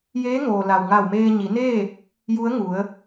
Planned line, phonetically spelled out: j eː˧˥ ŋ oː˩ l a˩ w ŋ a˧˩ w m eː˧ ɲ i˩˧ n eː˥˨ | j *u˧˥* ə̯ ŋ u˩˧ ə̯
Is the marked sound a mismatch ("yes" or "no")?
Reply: no